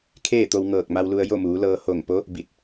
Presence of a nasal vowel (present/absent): absent